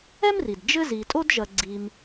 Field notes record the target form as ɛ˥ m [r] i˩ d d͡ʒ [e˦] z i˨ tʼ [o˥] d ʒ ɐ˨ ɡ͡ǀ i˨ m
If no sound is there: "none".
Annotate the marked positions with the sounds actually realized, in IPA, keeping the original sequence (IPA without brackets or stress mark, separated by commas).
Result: r, ɘ˦, o˥